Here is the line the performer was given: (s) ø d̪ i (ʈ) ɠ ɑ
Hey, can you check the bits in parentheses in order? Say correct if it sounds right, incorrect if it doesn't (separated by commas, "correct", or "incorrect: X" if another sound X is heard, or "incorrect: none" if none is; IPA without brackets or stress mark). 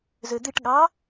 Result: incorrect: z, correct